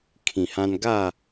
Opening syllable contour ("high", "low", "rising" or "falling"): low